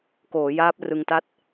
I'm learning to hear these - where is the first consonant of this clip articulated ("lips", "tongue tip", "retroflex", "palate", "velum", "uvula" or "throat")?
velum